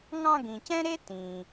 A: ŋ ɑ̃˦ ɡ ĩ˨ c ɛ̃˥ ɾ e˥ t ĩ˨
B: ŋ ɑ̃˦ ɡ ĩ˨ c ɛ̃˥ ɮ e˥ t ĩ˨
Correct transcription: A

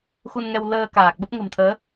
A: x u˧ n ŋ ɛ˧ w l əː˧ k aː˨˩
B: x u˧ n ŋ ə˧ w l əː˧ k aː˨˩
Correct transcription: A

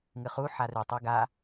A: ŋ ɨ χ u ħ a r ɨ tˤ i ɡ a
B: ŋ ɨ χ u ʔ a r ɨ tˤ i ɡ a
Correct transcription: A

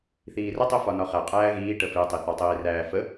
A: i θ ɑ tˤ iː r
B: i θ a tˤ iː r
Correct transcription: A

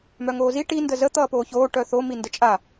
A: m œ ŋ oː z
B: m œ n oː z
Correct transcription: A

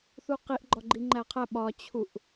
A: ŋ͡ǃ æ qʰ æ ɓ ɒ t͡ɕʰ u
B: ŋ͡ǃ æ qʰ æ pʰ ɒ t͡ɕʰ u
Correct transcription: A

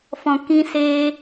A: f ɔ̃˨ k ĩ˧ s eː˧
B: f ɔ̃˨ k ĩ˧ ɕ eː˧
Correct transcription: A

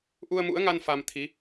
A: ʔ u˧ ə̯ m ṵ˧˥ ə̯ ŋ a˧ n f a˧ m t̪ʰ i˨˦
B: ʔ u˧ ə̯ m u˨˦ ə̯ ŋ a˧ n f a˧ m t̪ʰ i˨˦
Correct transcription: A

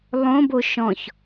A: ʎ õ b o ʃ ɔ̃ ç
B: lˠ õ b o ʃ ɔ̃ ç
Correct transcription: B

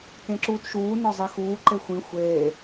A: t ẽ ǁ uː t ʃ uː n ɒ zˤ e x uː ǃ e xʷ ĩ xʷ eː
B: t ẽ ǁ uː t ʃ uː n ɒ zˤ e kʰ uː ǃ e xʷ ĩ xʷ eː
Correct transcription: A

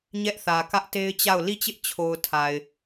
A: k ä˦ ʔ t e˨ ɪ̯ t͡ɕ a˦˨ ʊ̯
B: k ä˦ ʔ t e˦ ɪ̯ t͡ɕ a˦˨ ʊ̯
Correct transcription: B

